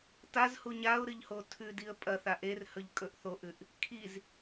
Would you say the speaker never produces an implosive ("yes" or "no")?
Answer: yes